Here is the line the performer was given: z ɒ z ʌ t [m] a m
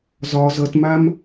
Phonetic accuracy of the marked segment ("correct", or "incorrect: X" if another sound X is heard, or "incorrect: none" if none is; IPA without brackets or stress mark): correct